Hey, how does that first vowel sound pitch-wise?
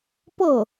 falling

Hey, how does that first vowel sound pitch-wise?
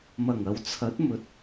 low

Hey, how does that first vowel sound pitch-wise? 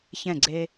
falling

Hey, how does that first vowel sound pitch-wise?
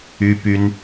high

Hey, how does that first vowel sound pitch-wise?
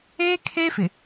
high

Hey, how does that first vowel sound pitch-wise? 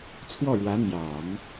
falling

